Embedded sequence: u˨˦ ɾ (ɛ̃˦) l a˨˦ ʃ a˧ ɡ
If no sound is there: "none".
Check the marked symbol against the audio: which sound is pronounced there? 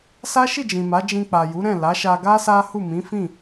ɛ̃˦˨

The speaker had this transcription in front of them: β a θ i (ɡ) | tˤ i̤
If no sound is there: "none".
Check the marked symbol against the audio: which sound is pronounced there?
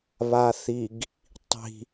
ɡ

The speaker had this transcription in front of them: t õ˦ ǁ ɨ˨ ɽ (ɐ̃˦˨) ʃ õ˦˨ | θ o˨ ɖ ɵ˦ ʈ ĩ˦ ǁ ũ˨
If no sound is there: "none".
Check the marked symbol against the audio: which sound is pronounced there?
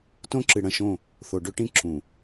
ɐ̃˨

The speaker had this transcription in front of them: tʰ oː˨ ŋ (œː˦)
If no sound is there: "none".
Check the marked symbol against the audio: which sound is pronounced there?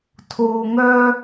œː˦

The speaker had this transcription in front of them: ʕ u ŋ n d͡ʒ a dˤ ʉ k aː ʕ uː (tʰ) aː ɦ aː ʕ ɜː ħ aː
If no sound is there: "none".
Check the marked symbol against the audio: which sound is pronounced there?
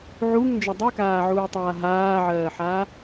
tˤ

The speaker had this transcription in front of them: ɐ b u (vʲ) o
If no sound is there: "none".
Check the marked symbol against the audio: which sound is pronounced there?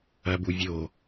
vʲ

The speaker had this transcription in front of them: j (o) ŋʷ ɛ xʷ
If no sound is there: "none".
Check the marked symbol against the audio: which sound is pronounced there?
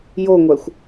o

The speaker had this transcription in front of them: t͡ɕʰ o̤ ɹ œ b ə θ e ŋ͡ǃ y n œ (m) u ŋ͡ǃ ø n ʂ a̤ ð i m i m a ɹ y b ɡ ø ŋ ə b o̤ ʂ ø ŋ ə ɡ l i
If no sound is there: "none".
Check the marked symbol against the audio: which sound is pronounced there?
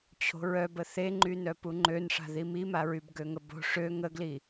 p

